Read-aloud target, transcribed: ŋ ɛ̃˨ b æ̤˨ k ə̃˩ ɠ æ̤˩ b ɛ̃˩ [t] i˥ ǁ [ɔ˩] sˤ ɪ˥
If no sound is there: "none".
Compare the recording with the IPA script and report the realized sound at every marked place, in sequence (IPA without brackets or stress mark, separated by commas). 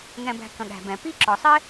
p, ɔ˩